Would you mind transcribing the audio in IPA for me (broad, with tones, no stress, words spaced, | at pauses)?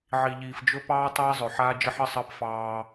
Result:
ʕi˨ʎiː˨fd͡ʒɵ˦pɑː˦ tˤiː˦zˤɵ˨ ħaː˦d͡ʒə˦ħ ə˦sˤəː˦pfɑː˦